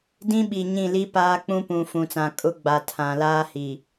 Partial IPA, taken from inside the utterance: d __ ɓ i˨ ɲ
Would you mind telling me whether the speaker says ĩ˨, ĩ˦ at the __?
ĩ˦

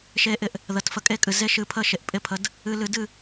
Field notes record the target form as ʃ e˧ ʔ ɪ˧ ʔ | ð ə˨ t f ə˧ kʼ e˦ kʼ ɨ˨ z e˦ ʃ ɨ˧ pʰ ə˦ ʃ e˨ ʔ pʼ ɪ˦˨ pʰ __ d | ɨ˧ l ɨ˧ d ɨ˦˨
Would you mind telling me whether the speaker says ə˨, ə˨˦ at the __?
ə˨˦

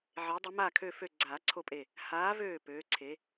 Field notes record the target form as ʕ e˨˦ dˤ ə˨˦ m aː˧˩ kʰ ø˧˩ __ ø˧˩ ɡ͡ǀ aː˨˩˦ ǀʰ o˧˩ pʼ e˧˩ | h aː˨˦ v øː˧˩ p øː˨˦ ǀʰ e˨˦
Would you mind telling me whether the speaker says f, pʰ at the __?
f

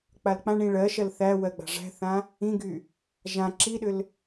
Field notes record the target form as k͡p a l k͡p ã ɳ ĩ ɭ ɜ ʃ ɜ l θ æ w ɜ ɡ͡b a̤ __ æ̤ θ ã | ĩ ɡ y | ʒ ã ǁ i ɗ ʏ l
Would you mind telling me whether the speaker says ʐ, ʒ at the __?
ʐ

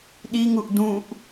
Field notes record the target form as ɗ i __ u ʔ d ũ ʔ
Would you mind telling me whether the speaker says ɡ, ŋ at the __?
ŋ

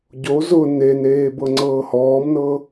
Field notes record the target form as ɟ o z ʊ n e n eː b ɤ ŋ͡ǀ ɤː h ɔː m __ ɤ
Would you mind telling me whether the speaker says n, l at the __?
n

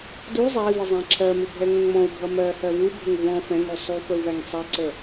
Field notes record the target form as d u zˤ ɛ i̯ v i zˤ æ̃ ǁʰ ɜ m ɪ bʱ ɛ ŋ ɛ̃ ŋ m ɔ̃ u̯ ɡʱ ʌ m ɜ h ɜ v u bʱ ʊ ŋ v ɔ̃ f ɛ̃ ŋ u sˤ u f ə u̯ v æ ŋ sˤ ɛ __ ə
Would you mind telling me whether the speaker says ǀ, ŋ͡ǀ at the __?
ǀ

